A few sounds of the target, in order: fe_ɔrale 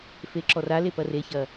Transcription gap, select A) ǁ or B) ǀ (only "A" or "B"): A